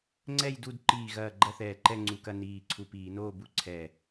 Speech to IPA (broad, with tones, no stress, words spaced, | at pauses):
ŋ͡ǀɛ˥˨jdu˥˨d ǃiː˧˩ɣɐː˧˩ ɡ͡ǃɐ˥˨θɛː˧˩ǃɛ˥˨ ŋ͡ǀu˧˩˧kɐ˥˨ niː˧˩ ǀʰu˧˩piː˧˩˧noː˥˨bu˥˨ ǀʰɛ˧˩